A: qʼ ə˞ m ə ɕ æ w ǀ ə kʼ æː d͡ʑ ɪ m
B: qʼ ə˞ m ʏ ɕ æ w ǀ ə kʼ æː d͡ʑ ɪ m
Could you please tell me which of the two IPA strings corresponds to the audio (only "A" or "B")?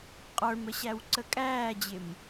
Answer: A